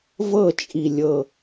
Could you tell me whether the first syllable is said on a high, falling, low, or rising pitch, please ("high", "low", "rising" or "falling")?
falling